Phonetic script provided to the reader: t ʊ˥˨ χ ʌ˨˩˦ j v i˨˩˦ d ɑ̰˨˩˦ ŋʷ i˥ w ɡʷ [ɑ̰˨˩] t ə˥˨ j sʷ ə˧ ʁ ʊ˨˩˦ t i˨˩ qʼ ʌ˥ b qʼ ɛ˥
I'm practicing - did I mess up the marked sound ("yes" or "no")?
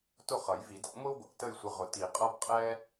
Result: no